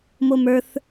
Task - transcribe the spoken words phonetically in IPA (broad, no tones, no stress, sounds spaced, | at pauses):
m o m ə˞ θ